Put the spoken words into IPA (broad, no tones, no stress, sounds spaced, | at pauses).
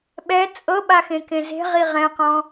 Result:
ɓ ɛ t͡sʼ ɤ ɓ a x ẽ k ẽ z e̤ ʁ i ʁ ɛ̃ q ɔ̃